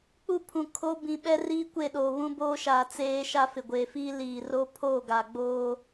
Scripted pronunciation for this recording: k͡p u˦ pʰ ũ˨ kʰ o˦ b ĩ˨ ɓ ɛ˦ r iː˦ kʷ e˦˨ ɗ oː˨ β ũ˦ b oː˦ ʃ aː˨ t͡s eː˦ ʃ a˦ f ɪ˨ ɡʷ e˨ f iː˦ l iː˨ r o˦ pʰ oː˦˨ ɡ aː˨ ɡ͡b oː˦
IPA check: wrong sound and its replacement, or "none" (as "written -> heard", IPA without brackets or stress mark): none